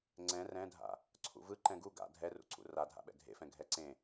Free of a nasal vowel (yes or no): no